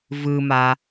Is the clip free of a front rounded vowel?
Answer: yes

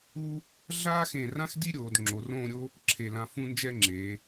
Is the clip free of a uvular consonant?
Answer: yes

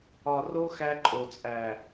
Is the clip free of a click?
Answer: no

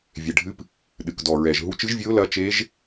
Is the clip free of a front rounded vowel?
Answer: yes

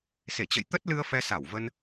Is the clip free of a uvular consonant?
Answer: yes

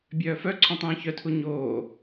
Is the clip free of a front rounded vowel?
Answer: no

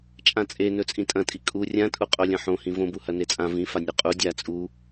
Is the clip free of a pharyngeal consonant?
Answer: no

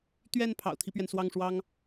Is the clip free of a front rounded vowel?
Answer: yes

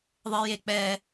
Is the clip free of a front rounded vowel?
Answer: yes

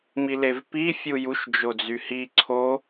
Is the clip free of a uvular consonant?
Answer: yes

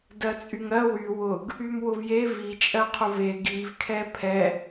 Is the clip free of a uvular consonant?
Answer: no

